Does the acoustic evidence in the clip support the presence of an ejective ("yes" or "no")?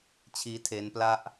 no